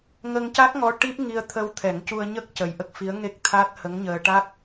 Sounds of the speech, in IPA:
ŋ ə˧ ŋ c a˦˥ k̚ ŋ ɔ˧˥ ʈ i˦˥ p̚ ŋ i˧ ə̯ t̪ʰ ə˧ w t̪ʰ ɛ˨˩˦ ŋ c u˧ ə̯ ɲ ə˦˥ k̚ c ə˨˩ j ʔ ə˦˥ k̚ f i˧˥ ə̯ ŋ e˦˥ k̚ t̪ʰ a˦˥ t̚ h ə˧˥ ŋ ɲ əː˧ ʈ a˦˥ k̚

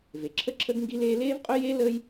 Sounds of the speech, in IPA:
v e˩ ǁʰ ə˥ ǁʰ ə˥ ɡ ŋ ɡ i˥ l eː˥ l eː˥ v qʼ ɵ˥ j e˥ l əː˥ j

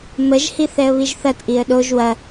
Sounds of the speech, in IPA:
m ə ʒ h i θ ɛ ə̯ β i ʒ θ ɐ t ʔ i ə̯ ɗ o ʒ w ɐ

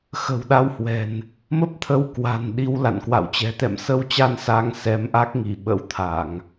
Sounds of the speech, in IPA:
x ə̤˨˩ w ɗ a˨˦ w h w ɛ̤˨˩ n | m ə˦˥ p̚ t̪ʰ ə˧ w k w a̤˨˩ n ɗ i˨˦ w l a̰˧˨ n k w a̰˧˨ w t͡ɕ ɛ̤˨˩ t̪ ɛ̰˧˨ m s ə˧ w t͡ɕ a˧ n s a˨˦ ŋ s ɛ˨˦ m ʔ a˦˥ k̚ ŋ i˧˩ ɓ ə̰˧˥ w t̪ʰ a˧˩˨ ŋ

